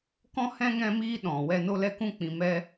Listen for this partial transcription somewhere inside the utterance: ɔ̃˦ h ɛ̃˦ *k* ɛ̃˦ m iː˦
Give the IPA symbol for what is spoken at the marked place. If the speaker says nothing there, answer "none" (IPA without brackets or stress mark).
ŋ